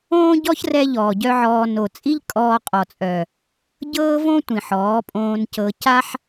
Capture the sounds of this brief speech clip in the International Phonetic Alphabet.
õː˦ ɟ ɔ˦ ç r ɛ˧ ʎ ɔː˨ ɟ œ˦ ʕ ɔː˧ n o˨ t͡sʼ i˦ ʎ kʼ ɔː˧ qʼ ɔ˨ t͡sʼ œ˨ | ɟ ɤː˦ v õ˦ tʷ ĩ˨ ħ ɔː˨˦ pʼ õː˧ n c ɤ˧ c a˦ ħ

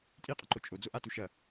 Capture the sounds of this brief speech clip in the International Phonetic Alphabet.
tʼ i qʼ ɐ ǃ o t͡ʃʼ o d͡z o ʔ a t u ʃ ɐ

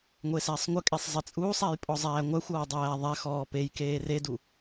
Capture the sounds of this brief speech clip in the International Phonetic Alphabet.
ŋʷ e s æ sˤ ŋʷ ə kʼ e sˤ zˤ e t͡sʼ uː sˤ æ j pʼ ɔ zˤ æː ŋʷ æ xʷ ɔː dˤ æː ðˤ æ x ɔː p e j k eː r e d u

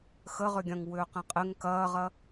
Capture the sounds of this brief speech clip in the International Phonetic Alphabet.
x ə ʁ ʏ ɡʲ ɐ̃ ŋ w ʏː q ẽ qʼ ɪ ŋ k ɐː ʁ ɐ

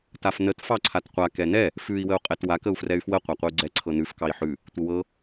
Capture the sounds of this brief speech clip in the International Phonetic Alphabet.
t a f n ə t f ɑ ǀʰ a t qʷ a k ɛ n ɛ | f ʉ i̯ w ə u̯ qʼ ɛ t w a k ə u̯ f r ɛ y̯ f w ə qʷ a qʷ ə y̯ ɡ͡ǀ ɛ ǀʰ ɤ n ʉ f k ɑ i̯ ħ ʉ | tʷ ə w ɤ

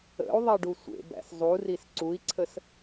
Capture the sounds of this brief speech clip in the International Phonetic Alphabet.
ə̰ u̯ ðˤ ɛ ɖ u sʷ ḛ b æ̰ s zˤ u r i s ǀ u i̯ ǀʰ ə s

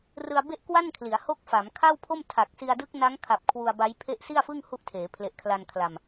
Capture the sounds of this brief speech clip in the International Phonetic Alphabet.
r ɯ˧ a̯ b e˥˩ ʔ k w a˥˩ n kʰ l i˩˦ a̯ h o˦˥ k̚ f a˩˦ m kʰ a˥˩ w pʰ o˥˩ m tʰ a˨˩ k̚ s i˧ a̯ d ɯ˦˥ k̚ n a˦˥ ŋ kʰ a˨˩ p̚ kʰ w u˧ a̯ b a˦˥ j pʰ e˦˥ ʔ s i˥˩ a̯ f ɯ˥˩ ŋ h u˦˥ ʔ tʰ eː˩˦ pʰ l e˨˩ ʔ kʰ l a˧ n kʰ l a˧ m

